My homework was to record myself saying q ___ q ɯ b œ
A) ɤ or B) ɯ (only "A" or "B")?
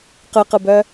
B